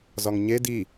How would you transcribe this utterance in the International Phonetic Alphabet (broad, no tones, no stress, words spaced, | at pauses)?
zɒŋɲe di